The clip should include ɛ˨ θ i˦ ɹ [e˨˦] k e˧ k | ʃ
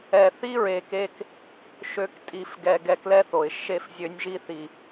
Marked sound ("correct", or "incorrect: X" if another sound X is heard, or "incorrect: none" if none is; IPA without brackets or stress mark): incorrect: e˨